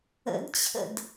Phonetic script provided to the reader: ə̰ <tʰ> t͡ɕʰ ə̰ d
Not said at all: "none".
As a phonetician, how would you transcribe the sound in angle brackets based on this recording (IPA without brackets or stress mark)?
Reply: d